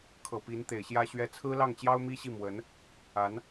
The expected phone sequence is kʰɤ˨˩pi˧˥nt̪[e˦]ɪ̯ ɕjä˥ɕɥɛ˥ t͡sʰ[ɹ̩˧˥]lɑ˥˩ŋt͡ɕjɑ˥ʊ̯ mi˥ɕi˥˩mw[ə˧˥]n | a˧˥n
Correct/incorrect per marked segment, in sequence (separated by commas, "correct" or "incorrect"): incorrect, incorrect, correct